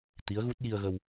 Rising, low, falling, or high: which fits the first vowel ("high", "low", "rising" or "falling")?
rising